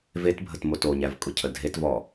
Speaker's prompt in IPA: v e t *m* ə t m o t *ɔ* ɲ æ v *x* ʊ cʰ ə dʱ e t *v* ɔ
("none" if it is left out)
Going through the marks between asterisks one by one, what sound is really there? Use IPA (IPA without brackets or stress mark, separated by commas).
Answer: bʱ, o, kʼ, v